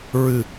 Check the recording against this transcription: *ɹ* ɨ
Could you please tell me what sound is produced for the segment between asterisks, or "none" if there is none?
ɹ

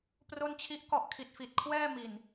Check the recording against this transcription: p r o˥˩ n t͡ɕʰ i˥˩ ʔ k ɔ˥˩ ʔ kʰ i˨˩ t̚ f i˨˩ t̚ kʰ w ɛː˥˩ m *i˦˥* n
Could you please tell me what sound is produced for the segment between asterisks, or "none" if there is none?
i˨˩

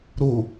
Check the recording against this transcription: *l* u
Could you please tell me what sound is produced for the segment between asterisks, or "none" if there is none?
ɾ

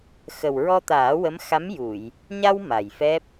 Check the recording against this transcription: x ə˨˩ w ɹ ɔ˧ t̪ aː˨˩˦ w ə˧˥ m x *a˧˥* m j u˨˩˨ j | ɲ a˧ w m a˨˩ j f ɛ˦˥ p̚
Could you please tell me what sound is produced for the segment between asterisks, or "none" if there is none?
a˧˥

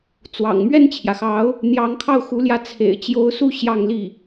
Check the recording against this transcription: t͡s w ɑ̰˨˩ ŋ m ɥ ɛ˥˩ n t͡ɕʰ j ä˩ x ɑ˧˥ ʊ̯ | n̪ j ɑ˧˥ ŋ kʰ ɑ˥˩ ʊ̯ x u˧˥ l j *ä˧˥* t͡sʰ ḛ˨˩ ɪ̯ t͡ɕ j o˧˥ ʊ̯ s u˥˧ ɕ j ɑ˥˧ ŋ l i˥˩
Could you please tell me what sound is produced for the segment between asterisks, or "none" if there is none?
ä˧˥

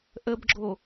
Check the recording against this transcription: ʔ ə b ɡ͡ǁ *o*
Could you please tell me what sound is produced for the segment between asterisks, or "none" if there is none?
o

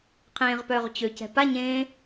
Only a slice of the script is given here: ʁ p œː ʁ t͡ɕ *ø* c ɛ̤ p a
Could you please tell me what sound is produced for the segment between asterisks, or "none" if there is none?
ø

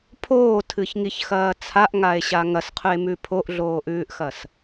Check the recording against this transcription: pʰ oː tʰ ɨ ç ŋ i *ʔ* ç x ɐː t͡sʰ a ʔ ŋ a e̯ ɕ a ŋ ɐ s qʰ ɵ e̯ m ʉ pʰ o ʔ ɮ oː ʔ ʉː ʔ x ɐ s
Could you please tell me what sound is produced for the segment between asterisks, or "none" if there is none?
none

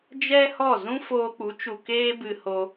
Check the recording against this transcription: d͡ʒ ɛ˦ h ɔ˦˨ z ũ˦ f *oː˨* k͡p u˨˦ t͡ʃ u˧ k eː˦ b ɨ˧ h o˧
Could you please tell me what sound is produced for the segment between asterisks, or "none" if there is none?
oː˧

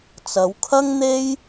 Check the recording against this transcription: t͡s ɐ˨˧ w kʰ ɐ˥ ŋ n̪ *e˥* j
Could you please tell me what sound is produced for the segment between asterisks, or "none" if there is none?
e˥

